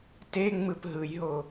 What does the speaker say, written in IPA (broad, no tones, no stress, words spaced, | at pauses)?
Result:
te ŋ͡mɯpɦɯjɦo